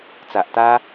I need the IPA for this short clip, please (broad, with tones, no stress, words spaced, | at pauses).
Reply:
t͡sa˨ʔt̪a˦